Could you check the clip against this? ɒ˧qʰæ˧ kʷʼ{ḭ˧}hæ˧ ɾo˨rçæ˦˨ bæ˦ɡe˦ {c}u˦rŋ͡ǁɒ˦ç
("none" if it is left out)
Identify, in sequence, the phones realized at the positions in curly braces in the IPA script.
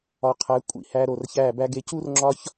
ḭ˧, c

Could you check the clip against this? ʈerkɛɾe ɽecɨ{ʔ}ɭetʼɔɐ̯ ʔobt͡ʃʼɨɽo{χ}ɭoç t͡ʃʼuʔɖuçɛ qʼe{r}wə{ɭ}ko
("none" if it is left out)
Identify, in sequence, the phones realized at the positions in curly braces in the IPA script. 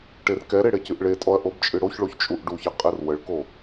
ʔ, ç, r, ɭ

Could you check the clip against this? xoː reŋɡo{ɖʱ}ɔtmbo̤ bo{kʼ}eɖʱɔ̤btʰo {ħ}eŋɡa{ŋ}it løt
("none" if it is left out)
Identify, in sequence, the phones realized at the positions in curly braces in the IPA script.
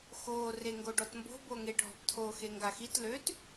ɖ, ŋ, x, x

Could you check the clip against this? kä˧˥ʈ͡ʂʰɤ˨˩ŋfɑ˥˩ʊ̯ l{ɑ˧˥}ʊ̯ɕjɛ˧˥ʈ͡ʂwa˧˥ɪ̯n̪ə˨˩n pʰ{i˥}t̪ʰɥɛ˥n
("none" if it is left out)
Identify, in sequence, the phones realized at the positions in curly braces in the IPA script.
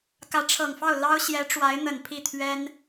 ɑ˥, i˥˩

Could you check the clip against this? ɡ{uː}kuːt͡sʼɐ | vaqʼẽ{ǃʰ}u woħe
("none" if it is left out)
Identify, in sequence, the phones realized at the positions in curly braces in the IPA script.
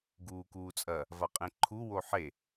uː, ǃʰ

